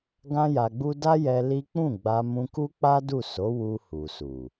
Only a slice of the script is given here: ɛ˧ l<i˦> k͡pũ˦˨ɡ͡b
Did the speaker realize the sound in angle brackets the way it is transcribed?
yes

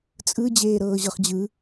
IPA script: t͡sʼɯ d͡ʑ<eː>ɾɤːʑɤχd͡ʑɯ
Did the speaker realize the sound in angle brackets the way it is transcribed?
yes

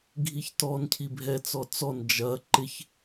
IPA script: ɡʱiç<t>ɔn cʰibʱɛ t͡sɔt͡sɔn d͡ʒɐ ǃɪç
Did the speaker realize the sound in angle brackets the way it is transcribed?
yes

